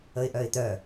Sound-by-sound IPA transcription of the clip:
ə ɪ̯ ʔ œ ɪ̯ t̪ œ

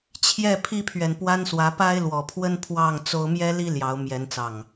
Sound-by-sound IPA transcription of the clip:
t͡ɕʰ j ɛ˥˨ pʰ i˦ pʰ ɥ ɛ˨ n p w a˦ n s w ä˨˦ p a˦ ɪ̯ l w ɔ˨˩ pʰ w ə˦ n pʰ w ɑ˥˨ ŋ t͡s o˦ ʊ̯ m j ɛ˦ l i˦ l j ɑ˨˦ ʊ̯ m j ɛ˨˦ n t͡s ɑ˨˩ ŋ

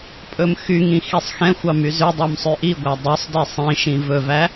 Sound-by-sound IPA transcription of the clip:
pʼ ɵ m x y ŋ ĩ x i sˤ x ɛ̃ xʷ ɑ m y z ʉ dˤ ɑ m sˤ y ʔ i ɡʷ æ dˤ ʉ sˤ d i sˤ ĩ ʃ ĩ v ɵ v æ

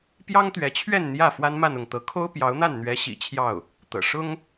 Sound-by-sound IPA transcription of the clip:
p j ɑ˥ ŋ t̪ ɥ ɛ˧˥ t͡ɕʰ ɥ ɛ˥˧ n n̪ j ä˥˩ f w a˥ n m a˥˧ n ʊ˥˩ ŋ t̪ ɤ˧˥ kʰ o˥ ʊ̯ p j ɑ˧˥ ʊ̯ n̪ a˥˩ n n̪ ɥ ɛ˧˥ ɕ ḭ˨˩ t͡ɕʰ j ɑ˥˩ ʊ̯ | t̪ ɤ̰˨˩ ʂ ʊ˥ ŋ

